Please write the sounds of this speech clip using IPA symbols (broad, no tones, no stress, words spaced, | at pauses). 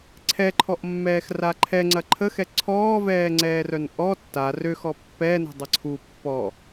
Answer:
ǀʰɛǃʰɔʔmːɛːxra ǃʰɛŋ͡ǀɐ ǃʰəxɛ ǀʰɔːvɛːŋ͡ǀɛːrœn ʔɔ tːa røxɔ pːɛnə̤dˤɐ ǀʰu pːɔ